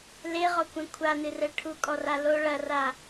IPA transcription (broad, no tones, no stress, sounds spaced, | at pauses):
l e ʁ ɔ kʷ ẽ kʷʰ a n ɨ r ɛ ʈʰ u kʼ ɔ r a l o ɭ ɐ r a